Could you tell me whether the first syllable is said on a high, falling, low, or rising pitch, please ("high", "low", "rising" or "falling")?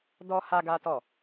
high